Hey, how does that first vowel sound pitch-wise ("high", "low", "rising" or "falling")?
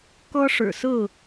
high